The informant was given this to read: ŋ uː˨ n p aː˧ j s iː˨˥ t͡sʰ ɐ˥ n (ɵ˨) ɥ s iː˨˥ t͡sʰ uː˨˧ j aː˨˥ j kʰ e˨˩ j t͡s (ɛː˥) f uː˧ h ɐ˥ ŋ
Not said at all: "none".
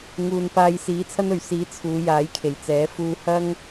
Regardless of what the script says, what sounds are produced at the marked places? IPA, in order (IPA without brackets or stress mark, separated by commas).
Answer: ɵ˨, ɛː˨˥